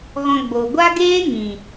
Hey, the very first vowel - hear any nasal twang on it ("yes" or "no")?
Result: yes